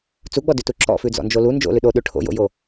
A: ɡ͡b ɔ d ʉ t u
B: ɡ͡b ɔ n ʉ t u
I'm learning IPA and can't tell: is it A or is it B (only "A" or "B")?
A